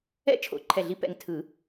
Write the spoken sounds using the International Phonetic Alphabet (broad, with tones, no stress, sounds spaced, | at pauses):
ɛ̰˧˥ t͡ʃʰ o̰˨˩˦ ǃʰ ɛ˨˩ ɮ i˨˩˦ p ɛ̰˨˩ ŋ tʰ ɯ˨˩˦